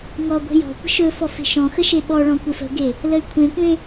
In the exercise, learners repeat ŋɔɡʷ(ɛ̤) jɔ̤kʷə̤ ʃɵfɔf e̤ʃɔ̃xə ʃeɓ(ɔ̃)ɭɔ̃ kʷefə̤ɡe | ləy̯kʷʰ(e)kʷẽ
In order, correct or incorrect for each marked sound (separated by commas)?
incorrect, incorrect, incorrect